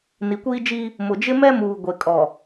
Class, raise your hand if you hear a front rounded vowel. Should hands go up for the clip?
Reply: no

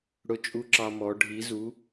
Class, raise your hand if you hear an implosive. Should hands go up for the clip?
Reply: no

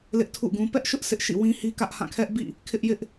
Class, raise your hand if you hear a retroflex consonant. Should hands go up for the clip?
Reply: no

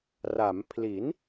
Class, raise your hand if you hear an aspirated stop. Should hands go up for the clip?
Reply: yes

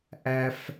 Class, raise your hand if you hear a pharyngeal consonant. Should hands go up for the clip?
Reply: no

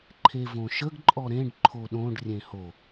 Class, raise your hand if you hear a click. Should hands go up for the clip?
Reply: yes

